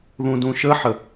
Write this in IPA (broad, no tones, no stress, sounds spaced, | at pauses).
ð ũ d ũ ʃ ə ħ ə